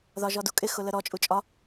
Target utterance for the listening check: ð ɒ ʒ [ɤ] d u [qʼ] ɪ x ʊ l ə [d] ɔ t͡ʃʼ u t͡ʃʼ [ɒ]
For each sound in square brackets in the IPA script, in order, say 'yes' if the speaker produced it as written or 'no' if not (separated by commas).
no, no, no, yes